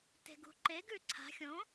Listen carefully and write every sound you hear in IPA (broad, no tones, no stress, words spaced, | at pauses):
te̤ɡṳǃe ɡʉǀʰa̤ xʲõ